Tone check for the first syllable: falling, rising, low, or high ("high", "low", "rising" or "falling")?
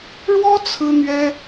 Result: high